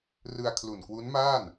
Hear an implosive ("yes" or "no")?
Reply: no